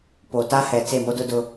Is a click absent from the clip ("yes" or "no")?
yes